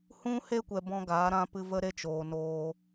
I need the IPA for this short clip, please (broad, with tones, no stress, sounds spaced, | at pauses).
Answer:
h ũ˦ h e˦ kʷ ɛ˨ b ɔ̃˧ ɡ aː˨˦ ɾ ã˦ p ɨ˧ v ə˦ ɾ e˦ t͡ʃ oː˨ n oː˧